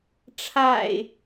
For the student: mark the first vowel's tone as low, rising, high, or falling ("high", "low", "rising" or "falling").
low